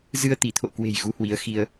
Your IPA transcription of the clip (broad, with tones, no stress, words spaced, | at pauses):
zɨ˧ə̯ t̪i˧˩t̪ʰo̰˧˨kwe̤˨˩j ɣu˨˦hwi˨˦ə̯xi˧ə̯